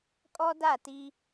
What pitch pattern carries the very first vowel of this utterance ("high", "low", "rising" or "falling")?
high